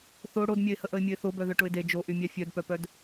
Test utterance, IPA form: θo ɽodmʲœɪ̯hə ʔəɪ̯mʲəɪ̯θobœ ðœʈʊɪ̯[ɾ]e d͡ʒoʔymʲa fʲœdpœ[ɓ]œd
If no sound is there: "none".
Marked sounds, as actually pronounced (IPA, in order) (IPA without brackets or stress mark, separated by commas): d, p